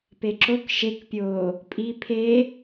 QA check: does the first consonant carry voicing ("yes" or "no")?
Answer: no